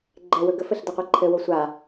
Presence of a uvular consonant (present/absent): present